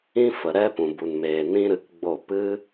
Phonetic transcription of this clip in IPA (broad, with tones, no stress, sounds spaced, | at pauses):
ĩ˦ f ə˨ ɾ ɛ˦ p ũ˨ b u˨ n m eː˨ n ĩ˦ ɾ ɨ˧ k ɡ͡b o˦˨ p ɨ˦